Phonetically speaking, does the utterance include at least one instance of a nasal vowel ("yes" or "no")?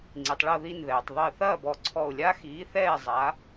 no